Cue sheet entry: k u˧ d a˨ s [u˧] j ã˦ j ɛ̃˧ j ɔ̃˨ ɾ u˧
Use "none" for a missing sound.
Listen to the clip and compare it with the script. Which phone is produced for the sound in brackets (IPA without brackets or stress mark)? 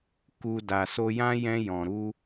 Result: o˧